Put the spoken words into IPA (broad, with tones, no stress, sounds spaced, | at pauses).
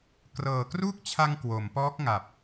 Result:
k r ɤː˨˩ k r u˥˩ k̚ t͡ɕʰ a˧ ŋ k w o˩˦ m p ɔː˦˥ k̚ ŋ a˨˩ p̚